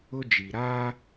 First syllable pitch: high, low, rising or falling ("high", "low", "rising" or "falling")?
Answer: high